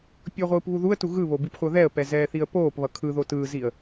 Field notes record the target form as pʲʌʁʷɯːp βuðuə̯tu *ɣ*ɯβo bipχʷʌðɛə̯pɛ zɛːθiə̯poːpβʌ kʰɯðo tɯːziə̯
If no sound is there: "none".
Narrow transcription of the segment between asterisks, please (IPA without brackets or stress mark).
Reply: ɣ